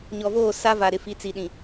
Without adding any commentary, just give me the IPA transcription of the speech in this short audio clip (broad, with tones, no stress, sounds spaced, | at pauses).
ɲ ɔ˨ v oː˦˨ s a˦ v a˨ ɾ ɪ˨ f i˨ t͡s i˨ ɗ ĩ˨